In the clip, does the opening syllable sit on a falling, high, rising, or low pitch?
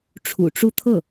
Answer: low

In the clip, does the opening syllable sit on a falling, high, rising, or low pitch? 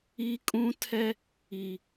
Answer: high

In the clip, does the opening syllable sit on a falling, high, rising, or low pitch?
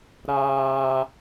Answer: high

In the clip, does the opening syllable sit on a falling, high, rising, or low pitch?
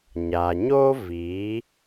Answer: low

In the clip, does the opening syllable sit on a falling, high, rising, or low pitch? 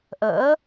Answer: rising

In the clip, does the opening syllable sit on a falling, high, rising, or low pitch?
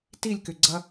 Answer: falling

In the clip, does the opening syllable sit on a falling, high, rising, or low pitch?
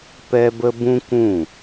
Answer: high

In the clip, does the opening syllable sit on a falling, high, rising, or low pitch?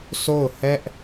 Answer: falling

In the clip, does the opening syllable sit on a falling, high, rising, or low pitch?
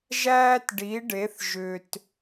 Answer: high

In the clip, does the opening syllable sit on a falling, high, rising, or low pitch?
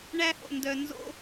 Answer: high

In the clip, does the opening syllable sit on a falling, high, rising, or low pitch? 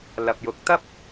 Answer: low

